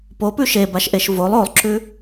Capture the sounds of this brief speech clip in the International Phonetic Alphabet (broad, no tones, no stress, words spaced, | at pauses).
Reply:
popʉ ʃebaʃʔeʃ volˠ olˠǁʉ